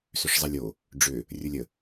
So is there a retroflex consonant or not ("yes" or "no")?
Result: yes